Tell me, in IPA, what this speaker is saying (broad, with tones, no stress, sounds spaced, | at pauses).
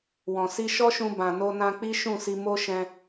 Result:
w ɔ̃˨ s i˧ ʃ ɔ˦ ʃ ũ˧ b ã˨ n o˧ n ã˧ k͡p i˦ ʃ ũ˦˨ s i˧ m o˦ ʃ ɛ̃˧